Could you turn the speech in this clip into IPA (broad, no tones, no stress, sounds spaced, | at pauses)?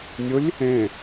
nʲ ʊ lʲ | ẽ